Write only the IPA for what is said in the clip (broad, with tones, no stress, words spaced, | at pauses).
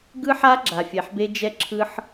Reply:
ɡɯ˦ħa˦ ɡ͡ǁa˨fʲɛ˨ħbe˦ d͡ʒɛ˦ǁʰɯ˦ħ